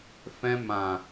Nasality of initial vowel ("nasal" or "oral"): nasal